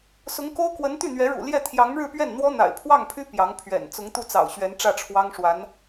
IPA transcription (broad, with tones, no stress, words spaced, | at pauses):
sʊ˧˥ŋko˥ʊ̯kwə˧˥n t̪y˥˩n̪ɥɛ˧˥ɻṵ˨˩ ljɛ˥˩ t̪ʰjɑ˧˥ŋɻɻ̩˥˧pɥɛ˥˩n n̪wɔ˥n̪a̰˨˩ɪ̯pʰwɑ˥˩ŋpʰy˥ pjɑ˧˥ŋpʰɥɛ̰˨˩n t͡sʊ˧˥ŋt̪u˥˩t͡sɑ̰˨˩ʊ̯ ɕɥɛ˧˥nʈ͡ʂä˥˩ʈ͡ʂʰwɑ˥ŋ ʂwa˧˥n